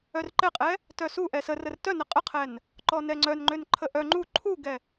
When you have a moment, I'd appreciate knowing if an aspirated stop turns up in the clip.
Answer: yes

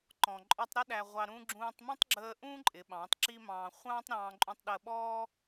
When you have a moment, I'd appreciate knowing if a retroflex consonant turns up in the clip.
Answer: no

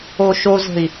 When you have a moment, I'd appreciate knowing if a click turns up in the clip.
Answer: no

